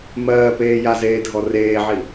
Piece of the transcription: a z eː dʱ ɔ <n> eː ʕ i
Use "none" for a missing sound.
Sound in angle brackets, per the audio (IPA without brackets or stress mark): r